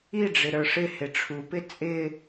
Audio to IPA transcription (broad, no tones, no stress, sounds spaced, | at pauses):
i ɖ͡ʐ ɪ ɾ ə˞ ʂ ɪ h ɪ ʈ͡ʂʰ u p ɪ t͡sʼ ɪ